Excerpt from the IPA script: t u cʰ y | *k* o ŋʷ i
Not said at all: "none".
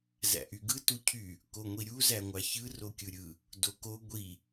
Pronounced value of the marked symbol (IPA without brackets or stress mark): k